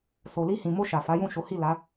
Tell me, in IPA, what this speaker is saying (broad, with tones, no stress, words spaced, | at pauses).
so˨li˧hĩ˨mo˧ ʃa˨fa˨˦jũ˦˨ʃo˨˦ hi˦˨la˨˦